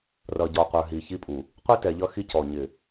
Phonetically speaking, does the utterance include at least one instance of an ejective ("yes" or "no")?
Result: yes